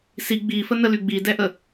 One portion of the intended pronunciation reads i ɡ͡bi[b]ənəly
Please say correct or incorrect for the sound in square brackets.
incorrect